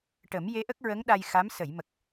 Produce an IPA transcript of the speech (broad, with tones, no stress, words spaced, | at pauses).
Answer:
ʈə˨˩˦m je˧˥ʔə˦˥k̚ɹə˧˥ŋ ɗa˧jxa˧˥m sə˨˩˨j mə˨˩k̚